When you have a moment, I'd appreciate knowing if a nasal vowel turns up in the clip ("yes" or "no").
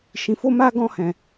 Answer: yes